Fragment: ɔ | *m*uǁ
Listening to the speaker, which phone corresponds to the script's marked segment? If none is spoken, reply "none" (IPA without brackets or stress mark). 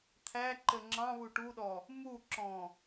m